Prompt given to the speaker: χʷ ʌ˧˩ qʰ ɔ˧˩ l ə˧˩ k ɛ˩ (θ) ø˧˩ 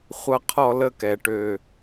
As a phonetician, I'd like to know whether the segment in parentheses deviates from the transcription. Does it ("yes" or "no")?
yes